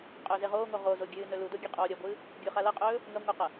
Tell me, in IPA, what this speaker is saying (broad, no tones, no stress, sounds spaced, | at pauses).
qʼ ɵː z e ʁ oː ŋ o ʁ o z o ɡʲ ɨː n ɵ l u d o ɡʲ ɨ qʼ oː ɾʲ ɐ ɡʷ ɨː | ɡʲ o χ a l ɐ qʼ ɵː | ŋ ɐ ŋʷ ɐ q ɐ